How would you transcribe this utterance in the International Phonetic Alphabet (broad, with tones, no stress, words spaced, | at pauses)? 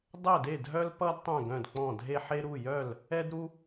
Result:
dˤɛ˥˨de˥˨dʱœ˥l pʌ˥d tˤœ̃˥˨ɡœ̃˥˨dk͡pɔ̃˥˨ dʱe˥ħe˥ ɾu˥˨jœ˥˨l | ɛ˥dɾu˥